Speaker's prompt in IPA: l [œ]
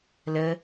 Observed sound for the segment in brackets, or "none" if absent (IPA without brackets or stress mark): ə